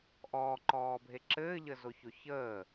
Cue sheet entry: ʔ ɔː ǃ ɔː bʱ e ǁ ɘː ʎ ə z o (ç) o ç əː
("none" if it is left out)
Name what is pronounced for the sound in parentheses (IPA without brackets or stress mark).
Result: ç